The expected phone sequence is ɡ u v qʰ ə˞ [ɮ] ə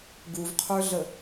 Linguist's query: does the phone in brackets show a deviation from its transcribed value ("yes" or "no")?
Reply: no